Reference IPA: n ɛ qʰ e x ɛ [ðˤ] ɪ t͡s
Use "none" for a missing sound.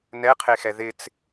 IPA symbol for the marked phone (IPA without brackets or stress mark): ð